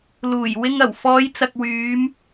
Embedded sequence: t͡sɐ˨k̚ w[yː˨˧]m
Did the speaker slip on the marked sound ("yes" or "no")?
no